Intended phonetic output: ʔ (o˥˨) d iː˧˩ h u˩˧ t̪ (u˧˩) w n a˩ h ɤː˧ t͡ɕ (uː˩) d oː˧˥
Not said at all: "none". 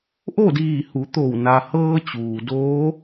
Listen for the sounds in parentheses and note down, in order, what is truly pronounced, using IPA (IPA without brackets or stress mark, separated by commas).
o˥˨, o˧˩, uː˩